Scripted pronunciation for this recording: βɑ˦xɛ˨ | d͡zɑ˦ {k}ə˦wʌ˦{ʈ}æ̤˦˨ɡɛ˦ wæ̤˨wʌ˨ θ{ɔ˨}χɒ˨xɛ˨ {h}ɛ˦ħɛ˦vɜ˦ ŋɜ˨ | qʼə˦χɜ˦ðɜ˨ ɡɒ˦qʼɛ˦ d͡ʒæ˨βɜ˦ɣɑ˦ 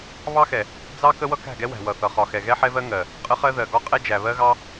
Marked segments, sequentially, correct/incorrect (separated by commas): correct, incorrect, incorrect, incorrect